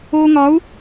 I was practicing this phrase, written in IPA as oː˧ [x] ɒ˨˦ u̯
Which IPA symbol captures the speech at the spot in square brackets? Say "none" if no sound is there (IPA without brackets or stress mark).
ŋ